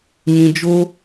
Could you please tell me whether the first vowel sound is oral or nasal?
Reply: nasal